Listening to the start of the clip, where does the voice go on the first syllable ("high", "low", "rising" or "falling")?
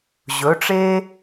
rising